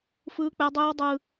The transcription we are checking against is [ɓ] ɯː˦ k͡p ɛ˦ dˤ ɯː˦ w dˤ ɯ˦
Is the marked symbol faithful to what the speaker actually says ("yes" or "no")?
no